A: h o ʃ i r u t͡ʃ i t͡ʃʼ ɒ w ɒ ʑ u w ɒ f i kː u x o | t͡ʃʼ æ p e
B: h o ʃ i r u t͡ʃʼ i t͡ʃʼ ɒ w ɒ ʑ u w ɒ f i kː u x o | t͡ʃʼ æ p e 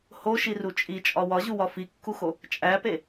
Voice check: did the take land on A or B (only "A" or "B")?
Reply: B